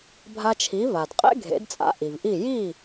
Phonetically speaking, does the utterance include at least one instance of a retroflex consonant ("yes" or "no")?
no